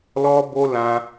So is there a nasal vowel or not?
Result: yes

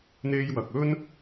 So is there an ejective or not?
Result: no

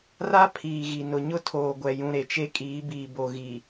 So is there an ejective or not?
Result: yes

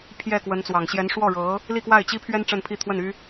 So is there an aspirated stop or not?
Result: yes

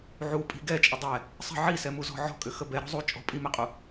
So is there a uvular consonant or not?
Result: yes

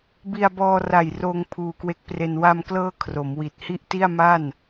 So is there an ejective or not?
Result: no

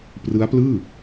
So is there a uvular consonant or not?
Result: no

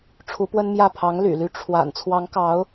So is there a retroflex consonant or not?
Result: yes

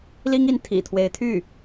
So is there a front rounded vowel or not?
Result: yes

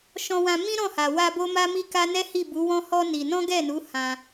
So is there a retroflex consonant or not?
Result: no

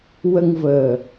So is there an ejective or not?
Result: no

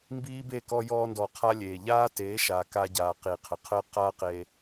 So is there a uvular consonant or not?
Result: yes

